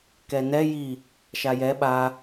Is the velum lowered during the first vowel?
no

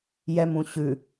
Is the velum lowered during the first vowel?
no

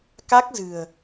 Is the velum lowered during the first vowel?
no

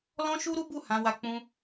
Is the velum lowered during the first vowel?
yes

